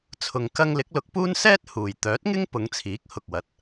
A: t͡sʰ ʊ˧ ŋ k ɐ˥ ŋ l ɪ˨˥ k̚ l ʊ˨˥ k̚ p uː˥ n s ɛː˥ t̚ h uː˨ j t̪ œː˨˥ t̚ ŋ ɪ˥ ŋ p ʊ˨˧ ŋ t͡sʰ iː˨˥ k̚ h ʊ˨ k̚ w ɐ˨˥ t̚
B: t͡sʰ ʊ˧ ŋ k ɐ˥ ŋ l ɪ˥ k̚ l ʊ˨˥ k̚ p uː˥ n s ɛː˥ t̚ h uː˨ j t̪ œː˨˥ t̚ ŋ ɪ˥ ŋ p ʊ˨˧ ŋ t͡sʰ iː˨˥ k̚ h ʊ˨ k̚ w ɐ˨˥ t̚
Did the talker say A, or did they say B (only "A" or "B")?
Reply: A